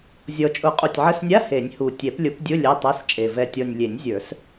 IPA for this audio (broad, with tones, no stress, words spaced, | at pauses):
zʲɔ˨˩t͡ʃʼʊ˨˩˦ qʼu˨˩tʲʕə˧˥˧snʲa˧˥˧ he˨˩˦nʲhu˨˩ tʲɛ˨˩˦plʲʊ˨˩˦pdʲʊ˧˥˧ lʲɛ˧˥˧tˤɛ˧˥˧st͡ʃʼe˨˩ vɛ˨˩tʲɔ˨˩nʲ lʲe˨˩˦nʲzʲə˞˨˩˦s